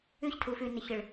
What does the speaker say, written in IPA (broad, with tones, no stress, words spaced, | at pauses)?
ʉ˦çtʰu˨fʉ˨ nɪ˨çɪ˨ɭ